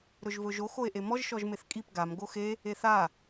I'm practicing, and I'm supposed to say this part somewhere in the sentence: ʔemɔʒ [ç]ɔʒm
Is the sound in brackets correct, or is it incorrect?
incorrect